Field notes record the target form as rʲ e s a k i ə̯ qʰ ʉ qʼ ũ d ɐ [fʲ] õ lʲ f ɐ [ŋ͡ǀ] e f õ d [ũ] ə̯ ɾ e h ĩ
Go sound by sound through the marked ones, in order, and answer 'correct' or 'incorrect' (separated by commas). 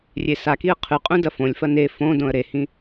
incorrect, incorrect, incorrect